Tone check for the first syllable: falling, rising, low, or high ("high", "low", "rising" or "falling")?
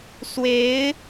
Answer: rising